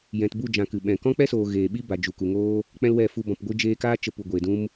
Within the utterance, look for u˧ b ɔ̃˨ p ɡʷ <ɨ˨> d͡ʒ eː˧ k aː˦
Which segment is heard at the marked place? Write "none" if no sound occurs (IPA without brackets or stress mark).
ɨ˧